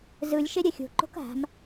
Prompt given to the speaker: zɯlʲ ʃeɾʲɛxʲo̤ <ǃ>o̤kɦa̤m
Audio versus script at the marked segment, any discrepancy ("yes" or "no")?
no